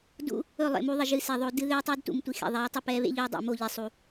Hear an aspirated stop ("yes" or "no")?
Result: no